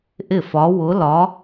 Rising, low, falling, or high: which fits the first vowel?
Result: falling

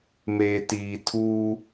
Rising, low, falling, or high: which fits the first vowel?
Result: low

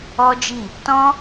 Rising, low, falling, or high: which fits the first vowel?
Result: high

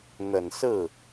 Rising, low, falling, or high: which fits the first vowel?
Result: low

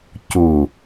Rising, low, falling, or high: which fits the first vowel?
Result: low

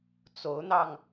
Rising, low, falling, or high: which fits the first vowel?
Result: rising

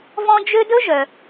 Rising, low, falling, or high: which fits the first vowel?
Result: high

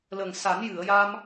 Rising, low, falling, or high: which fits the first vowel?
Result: low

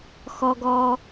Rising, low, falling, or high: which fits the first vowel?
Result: low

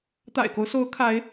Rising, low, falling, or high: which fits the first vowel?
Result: low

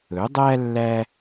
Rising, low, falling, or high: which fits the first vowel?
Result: rising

